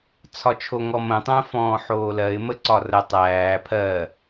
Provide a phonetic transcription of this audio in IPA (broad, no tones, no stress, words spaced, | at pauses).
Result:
t͡sʰɒt͡ʃʰoŋɔmə̃ tˤə̃ːfɔ̃ːħoːlɜɪ̯ məǀɒrə tˤæː pʰɜ